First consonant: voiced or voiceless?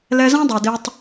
voiced